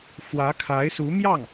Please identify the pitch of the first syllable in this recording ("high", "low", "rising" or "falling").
rising